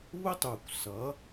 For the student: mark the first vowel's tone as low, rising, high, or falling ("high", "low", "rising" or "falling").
high